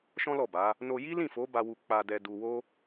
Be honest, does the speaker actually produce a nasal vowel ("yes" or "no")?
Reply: yes